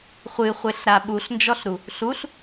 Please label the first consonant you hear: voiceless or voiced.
voiceless